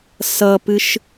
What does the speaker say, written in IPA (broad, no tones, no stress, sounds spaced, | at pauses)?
s ʌ p ɨ ʃ